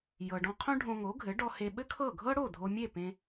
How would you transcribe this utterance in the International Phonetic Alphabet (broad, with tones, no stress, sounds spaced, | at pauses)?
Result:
j ɤ˩ ɖ ɔ̃˧ qʰ õ˥ ɖʱ õ˧ ŋ o˩˥ ɡʱ ɘ˩˥ ɖ ɔ˧ h e˧ ɓ ɘ˥ kʰ ɤ˥˩ ɡʱ ɤ˥ ɽ o˥˩ dʱ o˧ mʲ e˥˩ p ẽ˧